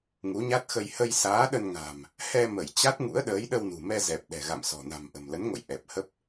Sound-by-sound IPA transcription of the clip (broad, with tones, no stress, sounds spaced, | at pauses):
ŋ u˨˦ ɲ a˦˥ t̚ x ə˧ j h ə˧ j s aː˨˦ ɗ ə˧ n ŋ a̤˨˩ m | h ɛ˧ m ə˧˩ j t͡ɕ a˦˥ t̚ ŋ ṵ˧˥ ə̯ ɗ əː˨˦ j ɗ ə˧ w n ṳ˨˩ m ɛ˧ z ɛ˨˩ p̚ ɗ ɛ̤˨˩ ɣ a̰˧˨ m s ɔ̤˨˩ n a̤˨˩ m ʔ ə̤˨˩ m l ə˨˦ n ŋ o̰˧˨ j ʔ ɛ˨˩ p̚ h ə˦˥ p̚